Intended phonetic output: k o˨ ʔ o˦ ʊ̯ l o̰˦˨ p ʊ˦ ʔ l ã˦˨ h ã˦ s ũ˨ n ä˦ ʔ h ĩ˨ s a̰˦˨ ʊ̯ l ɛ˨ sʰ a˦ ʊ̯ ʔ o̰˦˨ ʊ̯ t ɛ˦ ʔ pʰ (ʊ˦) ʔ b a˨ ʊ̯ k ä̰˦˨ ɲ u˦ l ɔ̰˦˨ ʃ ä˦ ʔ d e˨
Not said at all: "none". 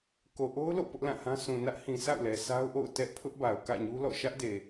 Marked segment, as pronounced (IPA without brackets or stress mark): ʊ˦